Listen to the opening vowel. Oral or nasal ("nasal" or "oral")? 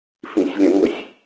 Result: nasal